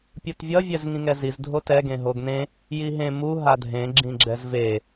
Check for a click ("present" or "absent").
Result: present